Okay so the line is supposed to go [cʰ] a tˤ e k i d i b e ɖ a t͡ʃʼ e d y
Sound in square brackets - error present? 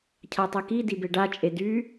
no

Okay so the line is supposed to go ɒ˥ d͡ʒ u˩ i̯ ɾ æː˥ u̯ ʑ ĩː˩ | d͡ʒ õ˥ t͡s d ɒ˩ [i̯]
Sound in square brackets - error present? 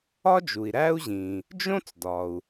yes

